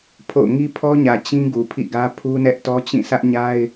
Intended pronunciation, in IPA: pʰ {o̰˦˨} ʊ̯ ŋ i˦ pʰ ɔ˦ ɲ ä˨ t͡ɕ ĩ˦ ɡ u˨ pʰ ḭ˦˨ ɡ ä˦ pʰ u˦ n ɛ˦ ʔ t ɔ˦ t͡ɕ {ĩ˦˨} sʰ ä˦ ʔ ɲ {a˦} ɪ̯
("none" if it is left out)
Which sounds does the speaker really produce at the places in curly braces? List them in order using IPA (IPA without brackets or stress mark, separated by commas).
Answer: o̰˦˨, ĩ˦˨, a˦